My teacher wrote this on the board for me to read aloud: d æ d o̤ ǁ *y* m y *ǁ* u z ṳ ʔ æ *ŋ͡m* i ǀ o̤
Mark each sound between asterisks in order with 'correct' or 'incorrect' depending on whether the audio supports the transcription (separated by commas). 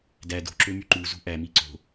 incorrect, incorrect, incorrect